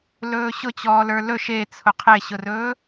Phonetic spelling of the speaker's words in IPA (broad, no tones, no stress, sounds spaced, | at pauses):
l ɵː ɕ ʊ t͡ɕ ɔː l ə˞ l ɵ ʃ e t͡sʰ ʊ qʰ e ɕ ʊ r ɵː